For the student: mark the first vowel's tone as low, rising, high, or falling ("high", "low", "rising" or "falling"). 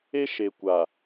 high